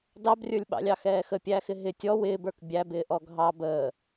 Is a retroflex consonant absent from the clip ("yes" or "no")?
yes